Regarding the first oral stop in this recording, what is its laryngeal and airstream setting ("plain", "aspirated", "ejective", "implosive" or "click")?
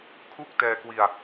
aspirated